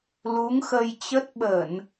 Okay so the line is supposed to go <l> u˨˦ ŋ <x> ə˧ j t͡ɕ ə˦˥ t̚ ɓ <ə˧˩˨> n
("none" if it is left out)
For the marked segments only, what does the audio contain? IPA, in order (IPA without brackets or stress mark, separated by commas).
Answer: l, x, ə˧˩˨